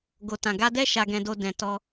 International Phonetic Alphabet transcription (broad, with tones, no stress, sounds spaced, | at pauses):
ɡ o˨ t ã˨ ɡ a˧ d ɛ˦ ʃ a˧ ɡ ɛ̃˧ d o˧ d ɛ̃˨ t ɔ˧